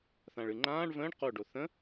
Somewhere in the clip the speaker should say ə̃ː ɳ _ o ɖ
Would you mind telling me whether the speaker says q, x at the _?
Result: q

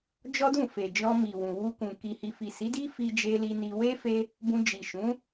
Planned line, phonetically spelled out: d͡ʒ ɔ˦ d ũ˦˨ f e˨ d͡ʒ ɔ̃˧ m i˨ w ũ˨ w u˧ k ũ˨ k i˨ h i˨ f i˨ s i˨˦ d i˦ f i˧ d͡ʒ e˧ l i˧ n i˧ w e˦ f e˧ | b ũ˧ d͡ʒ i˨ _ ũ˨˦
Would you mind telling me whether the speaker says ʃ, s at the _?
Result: ʃ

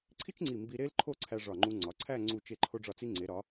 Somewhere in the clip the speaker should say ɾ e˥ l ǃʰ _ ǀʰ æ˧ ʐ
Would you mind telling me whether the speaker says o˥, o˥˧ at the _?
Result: o˥˧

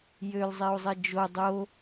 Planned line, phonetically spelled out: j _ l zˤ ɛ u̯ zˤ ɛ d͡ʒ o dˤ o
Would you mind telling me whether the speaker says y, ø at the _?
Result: ø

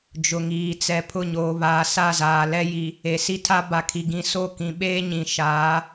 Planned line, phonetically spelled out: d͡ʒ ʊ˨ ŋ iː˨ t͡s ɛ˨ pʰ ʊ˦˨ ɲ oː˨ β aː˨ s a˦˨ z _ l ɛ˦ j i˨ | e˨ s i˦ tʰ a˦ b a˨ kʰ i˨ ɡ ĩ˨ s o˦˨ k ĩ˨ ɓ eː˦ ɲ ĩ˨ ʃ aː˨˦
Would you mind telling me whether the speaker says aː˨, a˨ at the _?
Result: aː˨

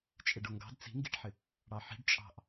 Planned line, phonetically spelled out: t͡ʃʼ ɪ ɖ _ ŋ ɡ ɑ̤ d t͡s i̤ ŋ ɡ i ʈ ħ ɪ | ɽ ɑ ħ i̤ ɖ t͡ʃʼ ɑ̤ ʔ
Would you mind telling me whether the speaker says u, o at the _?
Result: o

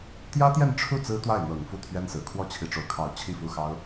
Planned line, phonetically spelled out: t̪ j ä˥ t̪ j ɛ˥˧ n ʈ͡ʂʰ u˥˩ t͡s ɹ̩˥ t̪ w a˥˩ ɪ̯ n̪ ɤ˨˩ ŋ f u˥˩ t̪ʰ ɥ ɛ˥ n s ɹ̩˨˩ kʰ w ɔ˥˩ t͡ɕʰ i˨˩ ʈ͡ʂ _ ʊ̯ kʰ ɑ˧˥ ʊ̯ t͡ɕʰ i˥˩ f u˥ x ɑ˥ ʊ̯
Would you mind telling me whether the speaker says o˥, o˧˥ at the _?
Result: o˧˥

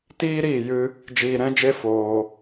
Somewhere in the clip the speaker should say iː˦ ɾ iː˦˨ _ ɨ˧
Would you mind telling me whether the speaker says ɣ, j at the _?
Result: j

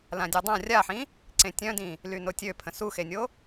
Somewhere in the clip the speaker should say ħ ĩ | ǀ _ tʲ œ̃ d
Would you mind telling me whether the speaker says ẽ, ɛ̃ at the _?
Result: ẽ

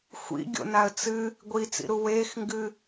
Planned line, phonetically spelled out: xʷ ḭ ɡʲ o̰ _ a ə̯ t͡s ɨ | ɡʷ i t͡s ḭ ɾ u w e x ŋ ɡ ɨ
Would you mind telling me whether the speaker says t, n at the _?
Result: n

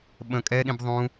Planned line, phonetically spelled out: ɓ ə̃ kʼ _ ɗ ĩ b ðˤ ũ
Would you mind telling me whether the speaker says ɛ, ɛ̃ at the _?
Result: ɛ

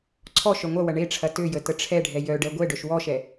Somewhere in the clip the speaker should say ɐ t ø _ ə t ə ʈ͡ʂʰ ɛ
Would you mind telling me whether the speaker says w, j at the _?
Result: j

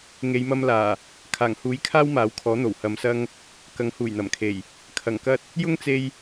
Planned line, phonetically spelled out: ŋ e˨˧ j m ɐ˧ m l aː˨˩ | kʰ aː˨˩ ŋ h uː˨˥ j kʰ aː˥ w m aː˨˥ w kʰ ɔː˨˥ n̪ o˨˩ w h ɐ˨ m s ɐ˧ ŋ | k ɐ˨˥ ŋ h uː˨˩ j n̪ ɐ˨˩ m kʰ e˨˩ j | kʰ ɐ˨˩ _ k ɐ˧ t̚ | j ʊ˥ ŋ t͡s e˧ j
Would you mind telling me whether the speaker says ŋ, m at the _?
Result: ŋ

